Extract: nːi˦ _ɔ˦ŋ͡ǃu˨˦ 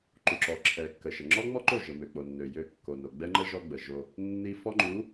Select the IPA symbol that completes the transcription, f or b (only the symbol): f